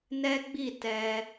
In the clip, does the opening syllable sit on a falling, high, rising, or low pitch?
high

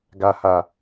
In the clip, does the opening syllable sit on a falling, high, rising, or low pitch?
low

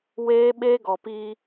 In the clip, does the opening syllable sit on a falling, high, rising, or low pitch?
high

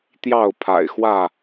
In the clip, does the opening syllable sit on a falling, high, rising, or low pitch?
falling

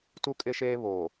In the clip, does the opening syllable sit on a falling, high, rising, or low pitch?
low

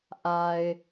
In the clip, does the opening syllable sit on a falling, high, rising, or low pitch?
low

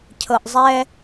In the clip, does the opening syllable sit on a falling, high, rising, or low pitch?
low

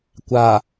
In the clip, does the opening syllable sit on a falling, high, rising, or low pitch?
low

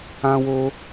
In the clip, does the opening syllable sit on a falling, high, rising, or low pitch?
high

